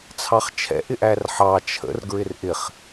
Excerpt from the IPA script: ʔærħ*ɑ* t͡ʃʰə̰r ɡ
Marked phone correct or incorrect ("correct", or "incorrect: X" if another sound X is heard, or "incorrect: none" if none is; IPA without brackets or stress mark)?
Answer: correct